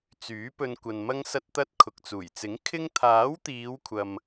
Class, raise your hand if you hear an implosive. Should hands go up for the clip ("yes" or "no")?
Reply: no